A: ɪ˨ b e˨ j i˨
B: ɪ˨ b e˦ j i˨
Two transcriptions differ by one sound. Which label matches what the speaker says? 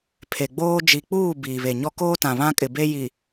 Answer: B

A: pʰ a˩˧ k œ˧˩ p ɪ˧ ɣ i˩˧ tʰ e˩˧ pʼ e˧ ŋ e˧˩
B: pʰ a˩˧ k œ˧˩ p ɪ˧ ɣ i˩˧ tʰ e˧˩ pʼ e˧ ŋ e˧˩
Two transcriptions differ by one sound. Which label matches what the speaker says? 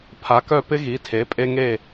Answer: A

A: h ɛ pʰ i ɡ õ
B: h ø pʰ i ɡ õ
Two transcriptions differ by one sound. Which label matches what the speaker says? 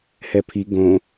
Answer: A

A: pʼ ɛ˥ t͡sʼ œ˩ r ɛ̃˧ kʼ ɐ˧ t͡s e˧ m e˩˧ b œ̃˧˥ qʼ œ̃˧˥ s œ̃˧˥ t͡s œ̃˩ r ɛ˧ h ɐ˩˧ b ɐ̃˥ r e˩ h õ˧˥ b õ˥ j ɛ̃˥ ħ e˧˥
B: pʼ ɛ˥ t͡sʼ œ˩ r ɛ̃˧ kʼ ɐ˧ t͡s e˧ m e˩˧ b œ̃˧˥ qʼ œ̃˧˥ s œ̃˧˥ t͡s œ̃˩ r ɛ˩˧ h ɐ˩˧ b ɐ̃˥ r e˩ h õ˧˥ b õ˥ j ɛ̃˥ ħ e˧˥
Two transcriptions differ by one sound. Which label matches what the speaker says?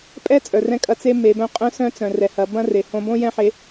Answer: B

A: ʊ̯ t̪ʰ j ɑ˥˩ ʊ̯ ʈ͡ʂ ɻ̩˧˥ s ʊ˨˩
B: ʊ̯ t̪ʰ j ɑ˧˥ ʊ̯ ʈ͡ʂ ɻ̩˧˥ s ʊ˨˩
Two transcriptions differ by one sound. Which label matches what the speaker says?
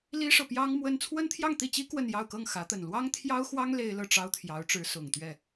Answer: B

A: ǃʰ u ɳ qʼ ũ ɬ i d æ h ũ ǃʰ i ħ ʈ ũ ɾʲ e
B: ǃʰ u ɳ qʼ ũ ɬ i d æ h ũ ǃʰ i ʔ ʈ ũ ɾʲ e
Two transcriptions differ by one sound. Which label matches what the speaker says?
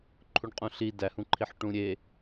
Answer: A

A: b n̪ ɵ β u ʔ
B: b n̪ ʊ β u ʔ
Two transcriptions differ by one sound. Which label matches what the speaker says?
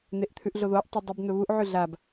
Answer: A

